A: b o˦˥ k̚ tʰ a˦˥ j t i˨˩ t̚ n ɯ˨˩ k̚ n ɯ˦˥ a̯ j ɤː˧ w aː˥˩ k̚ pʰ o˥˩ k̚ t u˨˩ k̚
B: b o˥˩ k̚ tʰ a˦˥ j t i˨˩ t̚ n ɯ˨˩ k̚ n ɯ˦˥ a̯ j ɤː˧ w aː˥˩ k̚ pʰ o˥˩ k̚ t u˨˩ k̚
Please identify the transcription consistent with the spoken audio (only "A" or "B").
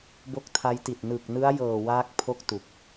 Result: A